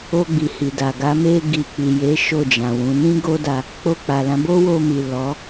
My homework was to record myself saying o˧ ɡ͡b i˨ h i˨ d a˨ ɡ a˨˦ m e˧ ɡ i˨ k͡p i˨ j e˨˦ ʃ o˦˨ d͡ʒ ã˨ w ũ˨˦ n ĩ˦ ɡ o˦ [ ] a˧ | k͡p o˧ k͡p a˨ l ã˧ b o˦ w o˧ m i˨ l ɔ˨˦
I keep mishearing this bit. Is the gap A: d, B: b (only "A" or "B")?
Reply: A